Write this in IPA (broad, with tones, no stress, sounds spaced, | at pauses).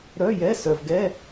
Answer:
ɾ œ˧˥˧ j ɛ˧˥˧ s œ˨ v ɡ ɛ˧˥˧